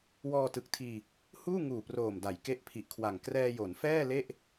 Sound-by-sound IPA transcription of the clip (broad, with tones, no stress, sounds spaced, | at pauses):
w ɔː˧ t ɯ˨˩ k̚ tʰ iː˧ | h uː˥˩ ŋ uː˨˩ p r oː˨˩ m d a˩˦ j k e˦˥ ʔ pʰ i˨˩ ʔ kʰ w a˨˩ ŋ k r ɛː˧ j o˩˦ n f ɛː˥˩ l e˥˩ ʔ